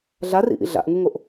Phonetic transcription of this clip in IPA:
ɮ a r ḭ ʔ ḭ ɮ a̰ ʔ ŋ u ŋ o ʔ

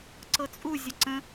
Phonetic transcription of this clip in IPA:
ǀ ɤ t͡sʼ u zʲ ə ǀ ə̃

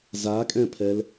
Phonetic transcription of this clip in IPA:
z a kʼ ɛ̃ pʰ ɛ l

